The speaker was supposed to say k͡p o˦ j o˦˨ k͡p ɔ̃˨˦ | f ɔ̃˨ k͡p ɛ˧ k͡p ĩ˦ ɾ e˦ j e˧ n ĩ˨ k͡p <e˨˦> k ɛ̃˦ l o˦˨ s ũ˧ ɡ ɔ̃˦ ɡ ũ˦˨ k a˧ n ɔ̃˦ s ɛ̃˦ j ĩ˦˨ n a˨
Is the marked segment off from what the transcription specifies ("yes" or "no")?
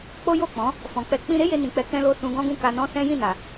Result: yes